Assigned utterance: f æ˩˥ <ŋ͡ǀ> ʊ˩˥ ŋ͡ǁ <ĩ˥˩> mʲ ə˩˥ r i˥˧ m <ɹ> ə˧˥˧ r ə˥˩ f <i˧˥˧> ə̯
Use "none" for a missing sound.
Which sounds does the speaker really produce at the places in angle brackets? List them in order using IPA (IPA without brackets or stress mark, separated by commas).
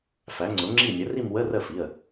ŋ͡ǀ, i˥˩, w, i˩˧˩